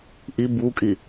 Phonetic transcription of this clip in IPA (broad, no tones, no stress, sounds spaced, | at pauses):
ʔ i b u kʼ i